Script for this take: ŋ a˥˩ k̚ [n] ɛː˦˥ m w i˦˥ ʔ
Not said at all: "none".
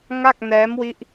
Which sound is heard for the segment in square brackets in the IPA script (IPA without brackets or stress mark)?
n